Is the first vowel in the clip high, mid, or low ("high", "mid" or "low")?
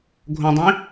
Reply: mid